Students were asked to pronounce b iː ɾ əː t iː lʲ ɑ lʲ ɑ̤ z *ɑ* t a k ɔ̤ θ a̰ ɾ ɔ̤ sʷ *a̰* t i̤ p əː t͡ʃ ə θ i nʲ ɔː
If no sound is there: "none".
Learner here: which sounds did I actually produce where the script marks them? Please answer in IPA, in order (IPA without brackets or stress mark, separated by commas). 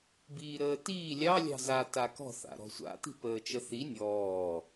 a, a̰